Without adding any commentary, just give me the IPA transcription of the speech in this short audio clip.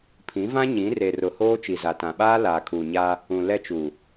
pʰ ĩ˨˦ v ã˦ ɲ ĩ˨˦ r e˨ r ʊ˨ h oː˦ t͡ʃ i˨ z a˨ t ã˨ ɓ aː˦ l aː˨ kʰ uː˨ ɲ aː˦ | ũ˨ l ɛ˦ t͡ʃ uː˨

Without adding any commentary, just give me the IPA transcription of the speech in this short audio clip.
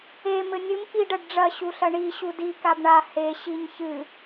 e m ɘ nʲ ɨ m ʔ i ɖ ɐ ɖ ɖ͡ʐ ɐ ɕ u ɬ ɐ ɳ i ɕ u d i k a b ɳ a h e ɕ i ɲ ç ɨ

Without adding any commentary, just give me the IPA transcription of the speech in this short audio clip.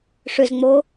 ʂ ʏ z ŋ͡m oː

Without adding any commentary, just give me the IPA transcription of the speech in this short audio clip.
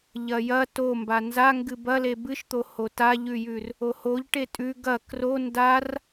ʎ ɐ j ɐ t o m b a n z a ŋ ɡ ɨ b ɐ l e b ɨ ʃ t̪ o h o t a ʎ ʉ j ʉ r | o h o ʎ ʈ e tʼ ʉ ɡ ɐ k r o n d a r

